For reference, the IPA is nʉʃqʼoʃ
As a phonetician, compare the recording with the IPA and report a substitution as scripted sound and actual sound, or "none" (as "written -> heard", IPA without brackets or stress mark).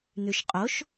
none